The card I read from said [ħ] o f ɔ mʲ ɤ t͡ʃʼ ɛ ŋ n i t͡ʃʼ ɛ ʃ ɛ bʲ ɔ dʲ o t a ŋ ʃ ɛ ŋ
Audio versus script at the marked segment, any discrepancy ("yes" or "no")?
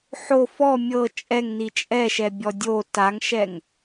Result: no